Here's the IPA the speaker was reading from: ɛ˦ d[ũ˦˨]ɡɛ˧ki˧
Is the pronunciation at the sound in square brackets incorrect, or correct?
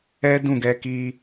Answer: correct